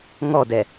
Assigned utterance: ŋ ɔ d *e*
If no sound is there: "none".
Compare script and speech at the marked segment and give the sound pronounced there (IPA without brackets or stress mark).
ɛ